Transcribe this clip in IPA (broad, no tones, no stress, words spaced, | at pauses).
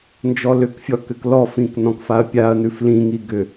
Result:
nd͡ʒɔlʏkfʲɔ kʏklɔfĩk nɔ̃kfaɐ̯pʲaɐ̯nʉf lĩŋi ɡʏ